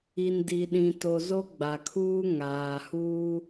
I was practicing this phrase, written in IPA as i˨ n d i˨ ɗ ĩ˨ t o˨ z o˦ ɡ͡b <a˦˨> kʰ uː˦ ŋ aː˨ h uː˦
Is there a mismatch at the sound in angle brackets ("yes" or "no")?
yes